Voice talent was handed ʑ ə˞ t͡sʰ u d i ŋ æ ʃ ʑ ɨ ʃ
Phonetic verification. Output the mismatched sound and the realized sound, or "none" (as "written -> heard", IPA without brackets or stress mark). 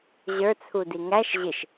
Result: ɨ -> ɪ